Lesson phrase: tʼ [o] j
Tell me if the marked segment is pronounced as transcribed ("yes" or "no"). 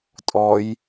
no